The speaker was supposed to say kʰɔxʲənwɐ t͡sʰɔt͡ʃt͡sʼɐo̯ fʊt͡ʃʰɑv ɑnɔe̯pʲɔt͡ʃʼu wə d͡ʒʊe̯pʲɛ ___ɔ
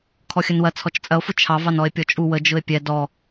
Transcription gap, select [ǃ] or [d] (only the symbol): d